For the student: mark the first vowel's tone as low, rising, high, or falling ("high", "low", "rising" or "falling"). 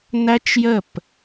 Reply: high